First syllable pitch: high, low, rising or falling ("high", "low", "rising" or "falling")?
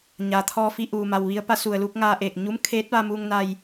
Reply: low